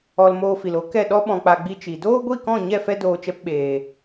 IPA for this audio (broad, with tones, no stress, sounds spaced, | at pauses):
ɔ˧ l m oː˧ f i˨ l o˨˦ k ɛ˦˨ ɗ ɔ˧ ɓ ɔ̃˨ k͡p a˨ ɡ͡b i˧ t͡ʃ i˨ d oː˦ ɡʷ i˦˨ k ɔ̃˦˨ ɲ ɛ˦˨ f ɛ˦ d oː˧ t͡ʃ ɛ˧ p ɓ eː˨